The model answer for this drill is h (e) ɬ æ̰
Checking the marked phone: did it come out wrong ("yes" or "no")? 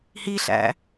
yes